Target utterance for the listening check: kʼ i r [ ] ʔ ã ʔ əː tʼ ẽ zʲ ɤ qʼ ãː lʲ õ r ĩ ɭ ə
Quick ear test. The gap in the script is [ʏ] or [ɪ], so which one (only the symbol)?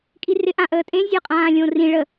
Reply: ɪ